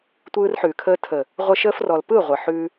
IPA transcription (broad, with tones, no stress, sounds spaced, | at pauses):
tʷ ɯː˧ r ħ ʉː˨ kʰ əː˧ tʰ ə˨ | ʁʷ ə˧ ʃ əː˧ f r ɔ˨ l p ɯ˦˨ ʁʷ ə˨ ħ ʉ˧